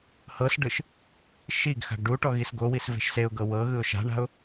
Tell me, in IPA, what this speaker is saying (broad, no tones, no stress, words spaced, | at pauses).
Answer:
hɤsɖɯʃ | ʃiɡ xa̤ɡɖuʈɔ ɣisɡowis ve̤ʃseʊ̯ɡɤ wɤɣɯʊ̯ ʃa̤ɳa̤ʊ̯